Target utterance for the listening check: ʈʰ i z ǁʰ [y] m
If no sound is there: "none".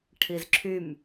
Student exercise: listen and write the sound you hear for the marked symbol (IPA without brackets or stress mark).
y